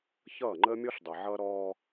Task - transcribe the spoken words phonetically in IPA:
ç ʌː˦˨ ŋ͡ǃ əː˦ mʲ ɔ˦ ɬ dˤ ʌ˨ ʕ ʌː˦ ɾ ɔː˦

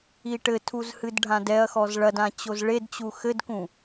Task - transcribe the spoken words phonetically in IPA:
i ʈ ɘ tʰ u z h ɨ d ɖʱ ã d ɛ ɐ̯ x ɔ z ɭ ɐ d ã t͡ɕ o z ɭ e d t͡ɕ u x ɘ d k ũ

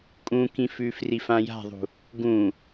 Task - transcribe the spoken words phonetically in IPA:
kʼ ũ k ĩ f ʉ f r i f ã j a̤ ðˤ ṳ | ɡ ũ

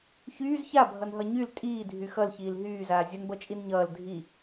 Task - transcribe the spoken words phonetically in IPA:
ç yː z ç a bʱ ʌ n ɦ ʌ ɲ y l tʼ iː dʱ y x ʌ l ç iː l ɦ yː z aː zʲ ə n b ʌ t͡ʃʼ i n ɲ ʌː l dʱ i

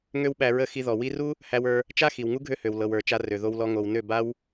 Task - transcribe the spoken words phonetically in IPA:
ŋ ø˦ w ɓ æ˧ ɹ ə˦˨ x i˧ ð ɔ˨ w i˧ r u˦ | h æ˧ w ə˞˧ | t͡ʃ a˦ x i˨ w ŋ u˦ ɡʱ ø˦ h ø˨ w l ɤ˨ w ə˞˨ t͡ʃ a˧ r ø˨ ð o˧ w l ɔ˧ ŋ o˨ w n ø˦˨ b a˦ w

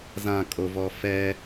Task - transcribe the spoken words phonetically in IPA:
z ã kʼ o v ɔ f ɛ

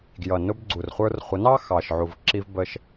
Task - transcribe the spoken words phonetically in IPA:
ɡ j ʌ˨ n ʊ˧ b ɡ͡ǀ u˨ r χʷ ə˞˧ r χʷ ə˨˦ n ɑ˦ x ɑ˨ ʃ ʕ u˨ v ǁ i˧ v b ə˦ ʃ

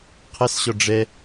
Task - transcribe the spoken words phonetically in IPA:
qʰ ɛ s ɕ ɔ ɖ͡ʐ ɛ

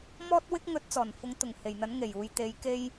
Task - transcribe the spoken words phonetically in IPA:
m ɔː˥ t̚ w ɪ˥ k̚ ŋ ɵ˨˥ t̚ t͡s ɔː˨˩ n f ʊ˨˥ ŋ t̪ ʊ˨˩ ŋ h e˨˩ j n̪ ɐ˨˥ n ŋ e˨˩ j uː˨ j t̪ e˨˥ j k e˧ j

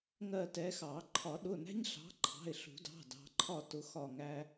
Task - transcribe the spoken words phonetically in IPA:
ŋ ɜ˦˨ t ɛ˨˦ x ɑ˨˩˦ ǃʰ ɒ˨˩˦ ɗ ʊ˩˧˩ n æ̤˦ ɲ ɬ ɑ̤˨˦ ǃʰ ɑ̤˩˧˩ ɪ̯ ɬ ṳ˨˩˦ d ɑ̤˩˧˩ d ɑ̤˨˦ ǃʰ ɒ˦˨ t ʊ˨˦ x ɒ˦˨ ŋ æ˦

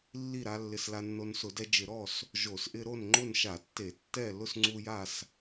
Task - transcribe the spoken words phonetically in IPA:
lː i˥˨ ɾ a˦ lː ɪ˦ s l a˦ nː o˦ n s ʊ˧˩˧ d ɛ˦ d͡ʒ ɪ˧˩˧ ɾ ɔ˥˨ s | ʒ o˧˩˧ s ʔ ɪ˦ ɾ o˥˨ n ŋ͡ǃ ʊ˥˨ n ʃ a˧˩˧ tː e˧˩˧ tː ɛ˥˨ l ʊ˥˨ s ŋ͡ǀ u˦ j a˥˨ s

